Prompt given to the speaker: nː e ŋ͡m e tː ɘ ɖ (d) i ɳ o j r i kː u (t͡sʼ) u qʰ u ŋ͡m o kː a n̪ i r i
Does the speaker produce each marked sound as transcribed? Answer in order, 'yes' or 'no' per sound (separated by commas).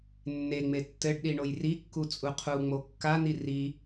no, yes